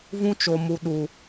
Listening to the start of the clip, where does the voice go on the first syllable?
high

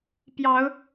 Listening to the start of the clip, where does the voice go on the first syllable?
rising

